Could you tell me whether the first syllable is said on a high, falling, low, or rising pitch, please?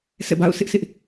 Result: falling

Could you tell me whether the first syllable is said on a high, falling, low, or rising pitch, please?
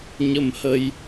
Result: low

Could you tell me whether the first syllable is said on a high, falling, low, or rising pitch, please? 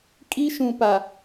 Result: high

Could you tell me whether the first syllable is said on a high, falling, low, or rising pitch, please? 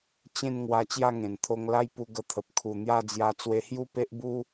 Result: falling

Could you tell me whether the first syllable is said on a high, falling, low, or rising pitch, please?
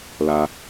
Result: high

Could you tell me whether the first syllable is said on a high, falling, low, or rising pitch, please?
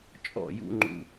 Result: falling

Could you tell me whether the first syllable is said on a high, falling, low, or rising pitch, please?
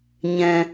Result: low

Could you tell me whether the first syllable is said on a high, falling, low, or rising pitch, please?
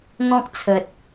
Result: high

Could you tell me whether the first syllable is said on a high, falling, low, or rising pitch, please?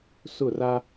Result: falling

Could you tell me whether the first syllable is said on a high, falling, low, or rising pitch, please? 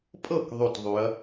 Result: falling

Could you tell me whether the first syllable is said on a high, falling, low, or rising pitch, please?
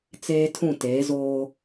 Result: high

